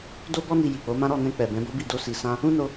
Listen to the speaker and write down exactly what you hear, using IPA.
d o˦ b ɔ˦ n i˧ j i˨ k͡p o˨˦ m ã˦ ɾ ɔ˦˨ n ɛ̃˧ k͡p ɛ˨ b ɛ̃˨˦ b o˦ b i˦˨ d o˧ s i˨ s ã˧ | ũ˦ n o˧

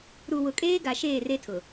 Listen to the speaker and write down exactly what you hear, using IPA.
ɾ u˨ w ʊ˨ kʼ eː˦ ɡ a˨ ʃ eː˦˨ r e˦ tʰ ʊ˨

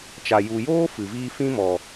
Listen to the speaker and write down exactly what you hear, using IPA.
t͡ʃ a˨ j u˨ j oː˦ f ɨ˨ v iː˦ f ĩ˦ m ɔ˨

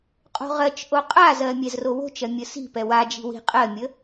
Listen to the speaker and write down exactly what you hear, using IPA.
qʼ o̤ ʁ ɜ t͡ʃ ʔ o qʼ a z ɜ mʲ ɛ z r o w o̤ t͡ʃ ɜ mʲ ə s i̤ p ɛ w a d͡ʒ i̤ w i̤ qʼ ɜ mʲ ə

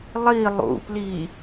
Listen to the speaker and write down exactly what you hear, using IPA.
lˠ i lˠ ṵ p l i

